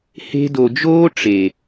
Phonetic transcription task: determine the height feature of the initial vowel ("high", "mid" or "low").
mid